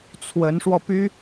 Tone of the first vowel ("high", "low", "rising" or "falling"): rising